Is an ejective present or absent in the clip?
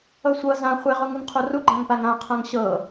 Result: absent